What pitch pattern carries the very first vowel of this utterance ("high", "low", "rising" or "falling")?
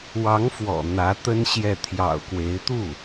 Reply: rising